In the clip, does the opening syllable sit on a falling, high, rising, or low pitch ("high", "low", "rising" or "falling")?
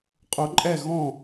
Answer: rising